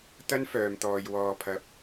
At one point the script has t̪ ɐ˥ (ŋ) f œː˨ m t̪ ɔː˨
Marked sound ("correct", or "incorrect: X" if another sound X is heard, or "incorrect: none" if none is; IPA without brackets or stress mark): incorrect: n